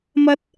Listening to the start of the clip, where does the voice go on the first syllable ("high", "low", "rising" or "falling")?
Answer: high